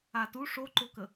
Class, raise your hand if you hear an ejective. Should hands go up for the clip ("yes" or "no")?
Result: no